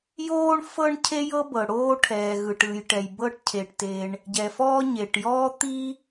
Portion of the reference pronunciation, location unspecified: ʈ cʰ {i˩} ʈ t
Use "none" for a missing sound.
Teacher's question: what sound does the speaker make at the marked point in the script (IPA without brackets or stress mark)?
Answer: e˩